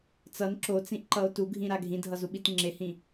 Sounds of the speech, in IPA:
t͡s ʌ n ǁ o t͡s ĩ ʔ ǃ ʌ o̯ t u ɡʱ ĩ ɾ a ɡʱ ĩ dʱ ʌ z u ɓ i t ŋ͡ǁ e h ĩ

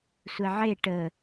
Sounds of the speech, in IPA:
sʷ ɛ ʕ e ʈ ə

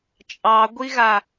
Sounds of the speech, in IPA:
t͡ʃʼ ɑ ɡʷ i ɣ a

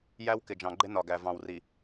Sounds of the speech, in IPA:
j æ˦ w k ɪ˨ d͡ʒ ɑ̃˨ ɡ͡ǃ ɪ˦ n ɒ˨ ɡ æ˨ v ɑ̃˨ w r i˨

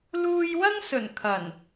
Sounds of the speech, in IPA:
l uː˧ j w ɐ˥ ŋ s ɵ˨˩ n kʰ ɐ˨˩ n

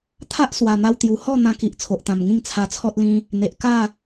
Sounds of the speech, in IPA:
t̪ʰ a˦ ʔ s w a˨˩ n̪ a˧ w t̪ j u˨˩ h ɔ˥˧ n̪ ã˧ k i˨ ʔ t͡sʰ o˨ ʔ t̪ ã˨˩ m ŋ ĩ˥˧ ŋ t͡sʰ a˧ t͡sʰ ɔ˦ t̚ l ĩ˧ | n̪ e˨ ʔ k a˥˧

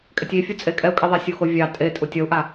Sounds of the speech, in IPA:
kʼ ɛ tʲ i fʲ u t͡sʼ e kʼ ɛ u̯ kʼ i ðˤ ɛ sʲ u x o vʲ ɑ tʼ e tʼ u tʲ ʌ u̯ ʔ a

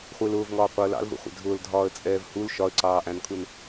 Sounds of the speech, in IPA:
χʷ ɪː l ʊː v ŋ ɒː qʷ ɑ ə̯ l ɑ̰ l v ə̰ χʷ ɛ̰ dʱ ʊː l dʱ ɒː ə̯ t͡sʼ ɛː v h u l ʃ ɒ ə̯ ǀ ɑː ʔ æ̃ n kʰ u n

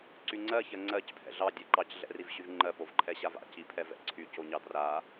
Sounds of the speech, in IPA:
ǀ y ŋ͡ǀ ɜ ç ɜ ŋ͡ǀ ɜ c pʰ ɛ̰ ɮ ɑ dʲ ɜ ǃ ɑ c ɮ ɛ̰ r i v ɕ y v ŋ͡ǃ ɜ p o v ǃʰ ɛ ɕ a v a̰ c i pʰ ɛ v ɛ̰ ǀʰ y c o ɲ ɑ d r a

